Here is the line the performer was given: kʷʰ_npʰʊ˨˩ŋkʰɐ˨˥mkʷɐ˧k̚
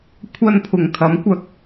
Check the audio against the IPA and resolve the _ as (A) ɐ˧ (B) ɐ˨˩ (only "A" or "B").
A